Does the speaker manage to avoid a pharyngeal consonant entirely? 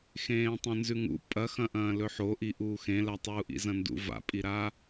no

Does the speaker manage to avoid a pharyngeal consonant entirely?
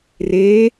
yes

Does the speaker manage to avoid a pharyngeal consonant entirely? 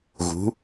yes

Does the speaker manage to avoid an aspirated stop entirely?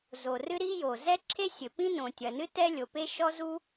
no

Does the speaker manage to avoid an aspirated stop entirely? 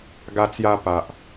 yes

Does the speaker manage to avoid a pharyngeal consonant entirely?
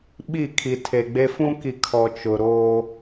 yes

